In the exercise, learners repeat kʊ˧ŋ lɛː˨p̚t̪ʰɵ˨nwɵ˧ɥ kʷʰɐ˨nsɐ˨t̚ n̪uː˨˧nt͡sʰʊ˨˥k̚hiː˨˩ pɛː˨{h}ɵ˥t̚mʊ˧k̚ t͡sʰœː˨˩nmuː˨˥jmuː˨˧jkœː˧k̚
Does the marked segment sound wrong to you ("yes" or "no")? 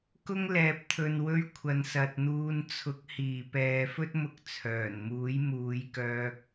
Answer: yes